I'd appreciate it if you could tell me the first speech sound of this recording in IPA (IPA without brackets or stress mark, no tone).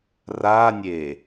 r